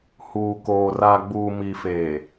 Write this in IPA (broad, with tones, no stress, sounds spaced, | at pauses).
h uː˨ k oː˨ r a˨ ɡ͡b uː˨ m i˨ f e˨